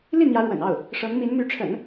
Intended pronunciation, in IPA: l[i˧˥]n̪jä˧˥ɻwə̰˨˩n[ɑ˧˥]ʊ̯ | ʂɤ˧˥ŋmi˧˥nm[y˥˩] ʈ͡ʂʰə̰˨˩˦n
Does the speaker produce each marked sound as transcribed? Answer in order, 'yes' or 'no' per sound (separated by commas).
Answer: no, no, no